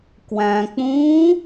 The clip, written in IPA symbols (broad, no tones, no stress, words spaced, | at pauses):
kwæ̃k͡pũː